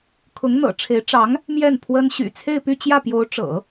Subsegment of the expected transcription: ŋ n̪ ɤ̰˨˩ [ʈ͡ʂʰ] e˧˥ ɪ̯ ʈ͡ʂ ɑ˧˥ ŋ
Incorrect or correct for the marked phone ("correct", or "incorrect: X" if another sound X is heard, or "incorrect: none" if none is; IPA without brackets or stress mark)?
correct